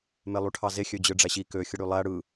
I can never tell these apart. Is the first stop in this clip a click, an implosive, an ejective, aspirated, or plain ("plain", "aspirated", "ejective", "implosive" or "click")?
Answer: aspirated